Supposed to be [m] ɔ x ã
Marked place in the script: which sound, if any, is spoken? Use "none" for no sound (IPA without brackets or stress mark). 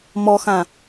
m